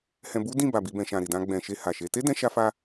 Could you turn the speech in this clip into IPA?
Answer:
hɛ̃˧bu˦dĩ˦˨ba˨ bi˨˦bɛ̃˧ ʃã˨ɾi˨dã˧ ɡ͡bɛ̃˨ʃe˧ ha˨ʃe˨˦ te˦dɛ̃˧ʃa˧fa˧

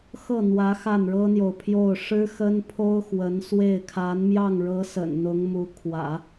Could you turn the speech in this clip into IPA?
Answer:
xɤ˥˩n̪wä˧˥ xa˥˩nɻɤ˥n̪jo˨ʊ̯pʰjo˥˩ʊ̯ ʂɻ̩˥xə˥n pʰo˥ʊ̯xwə˧˥nswe˥˩ɪ̯ kʰa˧˥nmjɑ˥˩ŋɻɤ˧˥ sə̰˨˩nn̪ʊ˧˥ŋmu˧˥ kʰwä̰˨˩˦

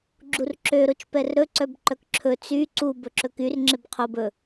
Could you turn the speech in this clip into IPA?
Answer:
ɡ͡ǁurǁø ɾot͡ʃpɛrɾɵ ǀœbǃœkǁʰɵ t͡sy ǀu bɵǁɵkyr ŋ͡ǁebqʰob ɵ

